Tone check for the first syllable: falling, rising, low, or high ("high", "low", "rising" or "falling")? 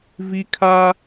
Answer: high